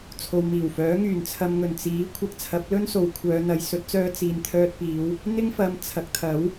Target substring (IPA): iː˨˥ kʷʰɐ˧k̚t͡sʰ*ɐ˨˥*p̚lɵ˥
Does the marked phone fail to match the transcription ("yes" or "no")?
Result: no